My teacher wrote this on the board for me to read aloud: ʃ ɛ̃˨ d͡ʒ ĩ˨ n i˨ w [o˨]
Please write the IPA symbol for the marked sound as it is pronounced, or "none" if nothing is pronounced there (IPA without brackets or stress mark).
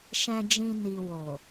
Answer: o˨